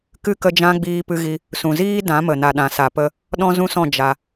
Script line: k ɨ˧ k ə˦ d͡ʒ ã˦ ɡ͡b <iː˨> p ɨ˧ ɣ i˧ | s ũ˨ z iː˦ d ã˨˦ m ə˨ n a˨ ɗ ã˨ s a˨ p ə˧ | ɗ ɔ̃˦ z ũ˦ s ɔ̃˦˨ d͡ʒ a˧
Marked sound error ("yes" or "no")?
yes